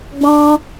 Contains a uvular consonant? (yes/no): no